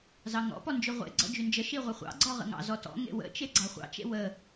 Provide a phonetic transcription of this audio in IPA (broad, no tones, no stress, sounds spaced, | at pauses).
z ɑ ŋ ɔ̰ p ɔ n d͡ʒ y ʁʷ ḛ ɡ͡ǀ ɔ̰ d͡ʒ y n d͡ʒ ə ʃ i ʁʷ ə χʷ ɑ̰ ɡ͡ǀ ɔ ʁ ə̰ ŋ ɑ̰ z ɔ t ɔ̰ ŋ ḛ w ə̰ t͡ʃ e ɡ͡ǀ ɑ χʷ ɑ̰ t͡ʃ ḛ w ə